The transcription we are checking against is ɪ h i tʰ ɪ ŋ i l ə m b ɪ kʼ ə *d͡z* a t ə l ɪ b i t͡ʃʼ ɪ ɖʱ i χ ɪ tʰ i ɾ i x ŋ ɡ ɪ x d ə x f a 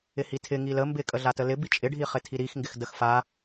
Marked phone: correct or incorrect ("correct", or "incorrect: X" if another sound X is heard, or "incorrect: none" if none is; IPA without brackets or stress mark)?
incorrect: ɮ